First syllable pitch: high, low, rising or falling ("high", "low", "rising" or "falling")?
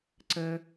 high